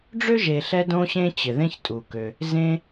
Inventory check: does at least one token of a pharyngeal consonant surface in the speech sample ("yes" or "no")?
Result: no